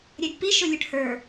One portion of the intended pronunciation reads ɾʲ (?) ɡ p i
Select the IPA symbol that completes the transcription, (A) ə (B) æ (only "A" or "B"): B